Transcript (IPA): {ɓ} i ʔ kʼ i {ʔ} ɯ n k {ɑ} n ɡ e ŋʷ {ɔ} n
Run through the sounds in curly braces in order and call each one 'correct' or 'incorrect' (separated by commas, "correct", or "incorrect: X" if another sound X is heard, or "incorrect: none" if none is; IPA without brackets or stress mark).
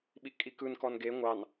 correct, incorrect: k, incorrect: ɔ, incorrect: ɑ